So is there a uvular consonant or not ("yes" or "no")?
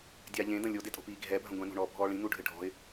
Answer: no